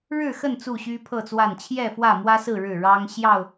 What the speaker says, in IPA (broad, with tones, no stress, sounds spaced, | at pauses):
ɻ ɻ̩˥˨ x ə˥˨ n t͡s u˥˨ ɕ y˦ pʰ ɤ˥˨ t͡s w a˥˨ n t͡ɕʰ j ɛ˥˨ f w ä˥˨ m w ä˦ s ɹ̩˥˨ ɻ ɻ̩˥˨ ɻ ɑ˦ ŋ ɕ j ɑ˥˨ ʊ̯